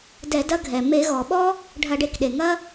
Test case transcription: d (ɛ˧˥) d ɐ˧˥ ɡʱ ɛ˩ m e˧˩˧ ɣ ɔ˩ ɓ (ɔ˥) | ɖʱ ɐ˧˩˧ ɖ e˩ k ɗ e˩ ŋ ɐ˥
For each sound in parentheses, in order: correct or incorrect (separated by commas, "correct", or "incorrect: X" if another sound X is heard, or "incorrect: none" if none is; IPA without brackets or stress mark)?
incorrect: ɛ˧˩˧, correct